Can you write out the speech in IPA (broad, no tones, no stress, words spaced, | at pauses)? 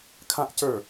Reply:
kʰãʔcə˞